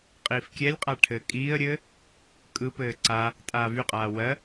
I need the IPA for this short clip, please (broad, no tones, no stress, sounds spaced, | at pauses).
qʼ iː f kʲ ɛ lʲ qʼ a ʈʰ ɘː kʼ iː ə̯ ɾʲ ɘː | kʼ ɯ p ɘː ǀ a | tʼ aː v y qʼ aː w ɜ